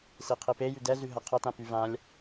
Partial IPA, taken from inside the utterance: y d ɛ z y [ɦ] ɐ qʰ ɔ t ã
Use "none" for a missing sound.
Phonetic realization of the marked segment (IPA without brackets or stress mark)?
ɦ